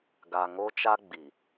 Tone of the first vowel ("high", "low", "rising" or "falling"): low